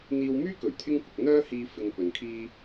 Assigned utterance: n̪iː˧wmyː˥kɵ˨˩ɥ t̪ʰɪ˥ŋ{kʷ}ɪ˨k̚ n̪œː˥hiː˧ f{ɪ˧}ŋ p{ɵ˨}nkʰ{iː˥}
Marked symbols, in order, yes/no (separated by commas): yes, yes, yes, yes